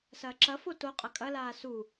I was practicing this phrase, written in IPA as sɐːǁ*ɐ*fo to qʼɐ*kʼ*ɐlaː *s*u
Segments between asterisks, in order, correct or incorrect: correct, correct, correct

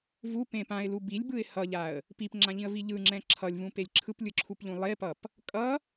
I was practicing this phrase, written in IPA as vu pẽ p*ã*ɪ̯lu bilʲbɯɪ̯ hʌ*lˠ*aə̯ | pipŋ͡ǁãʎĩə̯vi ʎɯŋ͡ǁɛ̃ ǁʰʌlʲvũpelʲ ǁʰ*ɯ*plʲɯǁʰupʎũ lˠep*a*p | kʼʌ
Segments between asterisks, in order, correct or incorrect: correct, incorrect: ʎ, correct, incorrect: ʌ

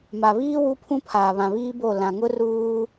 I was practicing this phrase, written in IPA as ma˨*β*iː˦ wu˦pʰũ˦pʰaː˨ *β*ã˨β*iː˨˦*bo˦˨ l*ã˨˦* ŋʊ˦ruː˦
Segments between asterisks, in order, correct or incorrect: correct, correct, incorrect: iː˦, incorrect: ã˨

